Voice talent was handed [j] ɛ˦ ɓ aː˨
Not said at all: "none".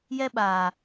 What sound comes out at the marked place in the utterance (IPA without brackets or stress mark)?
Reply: j